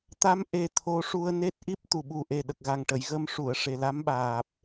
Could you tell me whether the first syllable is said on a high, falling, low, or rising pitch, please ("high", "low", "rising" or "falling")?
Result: rising